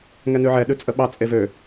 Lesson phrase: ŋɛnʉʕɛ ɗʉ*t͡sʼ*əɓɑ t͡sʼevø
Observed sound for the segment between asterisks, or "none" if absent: t͡sʼ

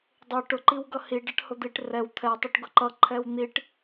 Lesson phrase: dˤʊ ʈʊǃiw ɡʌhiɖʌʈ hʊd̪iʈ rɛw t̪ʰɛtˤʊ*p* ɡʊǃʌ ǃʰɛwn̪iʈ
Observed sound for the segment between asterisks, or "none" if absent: ʈ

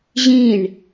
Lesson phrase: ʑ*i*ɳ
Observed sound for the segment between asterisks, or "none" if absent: ĩ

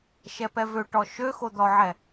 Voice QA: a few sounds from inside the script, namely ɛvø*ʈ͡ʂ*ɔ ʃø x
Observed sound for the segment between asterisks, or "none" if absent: ʈ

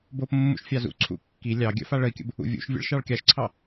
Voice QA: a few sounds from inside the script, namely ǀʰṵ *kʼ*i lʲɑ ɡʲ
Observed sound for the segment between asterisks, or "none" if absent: kː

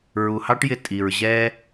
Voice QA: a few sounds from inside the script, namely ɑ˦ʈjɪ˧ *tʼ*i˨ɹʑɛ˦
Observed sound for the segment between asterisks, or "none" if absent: tʼ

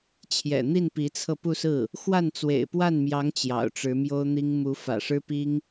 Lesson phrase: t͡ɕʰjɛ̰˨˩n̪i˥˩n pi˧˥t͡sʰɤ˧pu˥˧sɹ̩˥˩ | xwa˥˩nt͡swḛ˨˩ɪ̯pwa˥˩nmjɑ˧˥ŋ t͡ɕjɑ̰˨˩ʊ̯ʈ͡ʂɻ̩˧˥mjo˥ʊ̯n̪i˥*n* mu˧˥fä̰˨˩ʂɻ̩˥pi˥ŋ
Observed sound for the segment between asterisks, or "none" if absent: ŋ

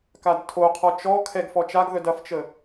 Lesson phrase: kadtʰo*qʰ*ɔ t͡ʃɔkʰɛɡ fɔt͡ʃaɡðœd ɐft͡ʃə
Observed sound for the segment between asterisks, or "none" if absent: qʰ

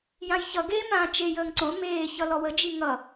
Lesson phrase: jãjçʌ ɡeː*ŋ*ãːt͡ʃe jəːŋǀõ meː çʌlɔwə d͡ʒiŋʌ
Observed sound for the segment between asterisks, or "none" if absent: m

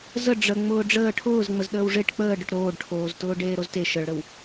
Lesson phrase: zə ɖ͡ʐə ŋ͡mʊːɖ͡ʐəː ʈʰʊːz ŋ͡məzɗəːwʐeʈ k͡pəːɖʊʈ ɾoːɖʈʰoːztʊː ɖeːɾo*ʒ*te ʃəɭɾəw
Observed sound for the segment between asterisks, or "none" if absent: z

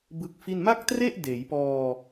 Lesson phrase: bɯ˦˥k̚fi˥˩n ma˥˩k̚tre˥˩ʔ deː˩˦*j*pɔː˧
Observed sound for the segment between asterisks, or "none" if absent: j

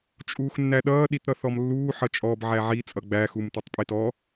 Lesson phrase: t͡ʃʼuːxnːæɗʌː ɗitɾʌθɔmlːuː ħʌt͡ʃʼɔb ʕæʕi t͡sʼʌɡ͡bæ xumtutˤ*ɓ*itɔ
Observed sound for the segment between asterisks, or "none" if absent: pʼ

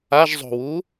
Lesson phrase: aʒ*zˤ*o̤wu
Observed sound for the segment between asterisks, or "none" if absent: zˤ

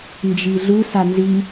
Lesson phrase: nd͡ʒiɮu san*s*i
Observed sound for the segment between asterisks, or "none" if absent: z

